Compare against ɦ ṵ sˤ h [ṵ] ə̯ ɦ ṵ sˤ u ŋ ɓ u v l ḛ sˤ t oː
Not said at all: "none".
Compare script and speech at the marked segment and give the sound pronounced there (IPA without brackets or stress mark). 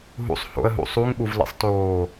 o̰